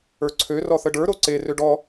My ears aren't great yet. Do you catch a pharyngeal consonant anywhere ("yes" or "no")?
no